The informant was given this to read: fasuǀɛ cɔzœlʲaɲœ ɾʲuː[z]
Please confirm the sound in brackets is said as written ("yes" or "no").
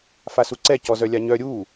no